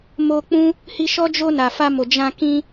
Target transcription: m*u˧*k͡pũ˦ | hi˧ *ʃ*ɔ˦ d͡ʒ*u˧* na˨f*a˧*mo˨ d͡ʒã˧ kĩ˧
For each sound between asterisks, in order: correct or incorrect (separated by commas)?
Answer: incorrect, correct, incorrect, correct